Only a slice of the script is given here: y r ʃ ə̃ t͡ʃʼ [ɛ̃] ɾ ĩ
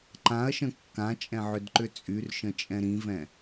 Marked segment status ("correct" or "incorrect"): correct